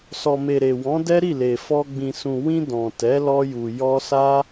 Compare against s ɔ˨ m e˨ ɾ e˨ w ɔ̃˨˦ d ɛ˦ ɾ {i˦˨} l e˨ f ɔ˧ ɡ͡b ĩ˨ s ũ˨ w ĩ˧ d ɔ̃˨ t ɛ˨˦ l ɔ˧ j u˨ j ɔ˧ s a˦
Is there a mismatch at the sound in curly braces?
no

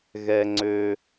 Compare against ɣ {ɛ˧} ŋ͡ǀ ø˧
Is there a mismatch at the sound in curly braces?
no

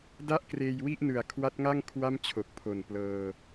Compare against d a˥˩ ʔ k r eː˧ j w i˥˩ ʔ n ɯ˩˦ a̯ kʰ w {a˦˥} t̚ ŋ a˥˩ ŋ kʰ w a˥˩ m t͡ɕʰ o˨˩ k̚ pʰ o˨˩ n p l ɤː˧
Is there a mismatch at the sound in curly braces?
no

